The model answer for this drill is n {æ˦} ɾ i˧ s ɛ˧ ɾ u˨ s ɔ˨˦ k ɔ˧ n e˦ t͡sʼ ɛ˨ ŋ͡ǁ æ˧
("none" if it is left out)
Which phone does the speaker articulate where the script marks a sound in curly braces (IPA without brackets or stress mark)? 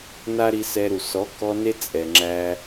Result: a˦